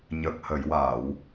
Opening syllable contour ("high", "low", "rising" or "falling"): low